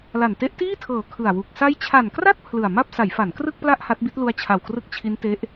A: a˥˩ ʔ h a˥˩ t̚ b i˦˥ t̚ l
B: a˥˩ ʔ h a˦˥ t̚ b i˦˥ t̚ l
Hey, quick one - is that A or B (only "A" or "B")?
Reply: B